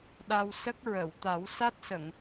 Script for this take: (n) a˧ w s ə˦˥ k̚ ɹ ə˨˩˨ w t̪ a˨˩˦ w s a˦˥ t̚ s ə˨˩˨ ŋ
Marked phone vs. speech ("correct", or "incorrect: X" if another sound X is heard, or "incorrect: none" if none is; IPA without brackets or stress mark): incorrect: ɗ